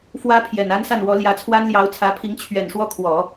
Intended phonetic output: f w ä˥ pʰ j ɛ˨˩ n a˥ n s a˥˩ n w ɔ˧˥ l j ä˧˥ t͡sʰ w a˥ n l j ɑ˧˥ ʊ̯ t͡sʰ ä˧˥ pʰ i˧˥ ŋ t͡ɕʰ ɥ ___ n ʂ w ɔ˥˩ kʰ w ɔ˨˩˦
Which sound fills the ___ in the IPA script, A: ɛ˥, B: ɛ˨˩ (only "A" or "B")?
B